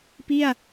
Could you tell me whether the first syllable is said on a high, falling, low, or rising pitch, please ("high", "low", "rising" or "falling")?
falling